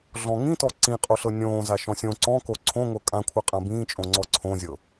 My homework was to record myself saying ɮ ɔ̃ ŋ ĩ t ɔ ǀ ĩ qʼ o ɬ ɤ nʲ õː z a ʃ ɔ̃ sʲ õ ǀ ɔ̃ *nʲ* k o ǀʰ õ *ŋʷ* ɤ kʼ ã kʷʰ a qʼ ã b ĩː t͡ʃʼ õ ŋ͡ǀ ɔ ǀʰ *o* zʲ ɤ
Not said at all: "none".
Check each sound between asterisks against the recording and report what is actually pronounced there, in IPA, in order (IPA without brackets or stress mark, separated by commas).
none, ŋʷ, õ